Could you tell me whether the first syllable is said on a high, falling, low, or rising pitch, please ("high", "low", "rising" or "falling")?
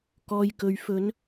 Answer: low